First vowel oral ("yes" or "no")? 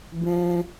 no